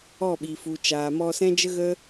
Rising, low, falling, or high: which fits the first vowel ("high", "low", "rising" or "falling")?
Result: falling